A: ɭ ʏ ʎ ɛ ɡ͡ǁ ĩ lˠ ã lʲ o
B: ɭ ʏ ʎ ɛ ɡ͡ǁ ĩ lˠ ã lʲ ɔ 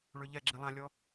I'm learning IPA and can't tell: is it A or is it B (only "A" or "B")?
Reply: B